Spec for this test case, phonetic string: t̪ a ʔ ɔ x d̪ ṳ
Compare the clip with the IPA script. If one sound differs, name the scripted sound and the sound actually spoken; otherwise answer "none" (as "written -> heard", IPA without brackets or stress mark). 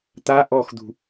none